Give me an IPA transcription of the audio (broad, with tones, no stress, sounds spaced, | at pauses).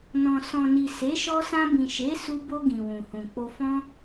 n ɔ̃˨ s ɔ̃˨ n i˨ s e˨˦ ʃ ɔ˧ s ã˧ b ĩ˨ ʃ e˨˦ s u˧ b o˧ ɡ ĩ˨ w ũ˨ h ũ˨ k͡p o˧ f ɔ̃˦